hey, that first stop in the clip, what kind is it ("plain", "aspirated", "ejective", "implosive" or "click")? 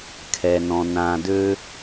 aspirated